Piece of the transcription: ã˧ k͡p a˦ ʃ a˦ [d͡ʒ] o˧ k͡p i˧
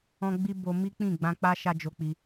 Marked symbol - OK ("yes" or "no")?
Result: yes